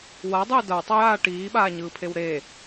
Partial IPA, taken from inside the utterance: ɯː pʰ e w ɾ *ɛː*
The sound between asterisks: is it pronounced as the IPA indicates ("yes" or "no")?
no